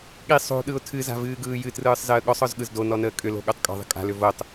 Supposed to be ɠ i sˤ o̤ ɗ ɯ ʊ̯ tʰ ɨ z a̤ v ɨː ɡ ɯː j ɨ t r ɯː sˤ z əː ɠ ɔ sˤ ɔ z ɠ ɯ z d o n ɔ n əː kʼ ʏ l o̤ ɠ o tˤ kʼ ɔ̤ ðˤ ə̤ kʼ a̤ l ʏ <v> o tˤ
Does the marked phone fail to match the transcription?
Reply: no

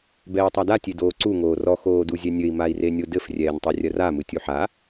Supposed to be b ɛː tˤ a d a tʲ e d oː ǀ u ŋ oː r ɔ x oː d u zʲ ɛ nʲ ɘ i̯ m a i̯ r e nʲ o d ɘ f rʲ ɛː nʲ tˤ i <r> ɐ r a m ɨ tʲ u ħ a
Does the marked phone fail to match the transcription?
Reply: yes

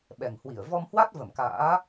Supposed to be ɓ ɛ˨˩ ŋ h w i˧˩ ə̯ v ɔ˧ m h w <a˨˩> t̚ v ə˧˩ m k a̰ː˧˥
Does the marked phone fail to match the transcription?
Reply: yes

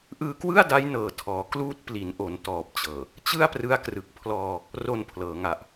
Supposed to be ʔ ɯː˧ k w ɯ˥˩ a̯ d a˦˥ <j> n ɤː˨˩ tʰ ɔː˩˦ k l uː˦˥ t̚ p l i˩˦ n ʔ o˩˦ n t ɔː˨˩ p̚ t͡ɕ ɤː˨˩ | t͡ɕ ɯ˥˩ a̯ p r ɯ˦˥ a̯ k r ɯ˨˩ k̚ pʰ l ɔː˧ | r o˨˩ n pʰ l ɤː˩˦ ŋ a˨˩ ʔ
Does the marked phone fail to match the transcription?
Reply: no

